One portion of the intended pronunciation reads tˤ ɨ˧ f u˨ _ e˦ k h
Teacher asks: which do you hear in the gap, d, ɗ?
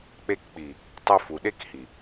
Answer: ɗ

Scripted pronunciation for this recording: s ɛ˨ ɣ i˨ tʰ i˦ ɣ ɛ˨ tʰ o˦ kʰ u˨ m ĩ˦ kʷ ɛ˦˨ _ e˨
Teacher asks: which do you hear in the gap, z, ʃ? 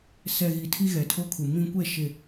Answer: ʃ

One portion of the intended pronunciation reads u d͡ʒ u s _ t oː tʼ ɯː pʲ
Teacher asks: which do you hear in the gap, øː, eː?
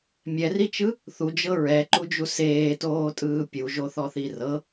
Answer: eː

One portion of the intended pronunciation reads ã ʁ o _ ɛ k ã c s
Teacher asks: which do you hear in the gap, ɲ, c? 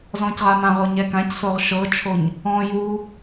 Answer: ɲ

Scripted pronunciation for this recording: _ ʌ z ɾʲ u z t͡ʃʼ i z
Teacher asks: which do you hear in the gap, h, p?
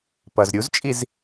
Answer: p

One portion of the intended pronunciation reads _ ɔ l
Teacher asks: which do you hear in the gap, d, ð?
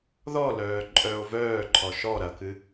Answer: ð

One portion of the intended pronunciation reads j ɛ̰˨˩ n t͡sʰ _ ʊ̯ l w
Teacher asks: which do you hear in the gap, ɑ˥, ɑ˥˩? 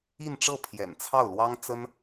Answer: ɑ˥˩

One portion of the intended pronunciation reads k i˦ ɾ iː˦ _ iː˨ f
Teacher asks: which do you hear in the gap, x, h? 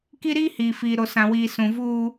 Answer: h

